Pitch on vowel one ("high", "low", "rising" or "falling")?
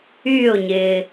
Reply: falling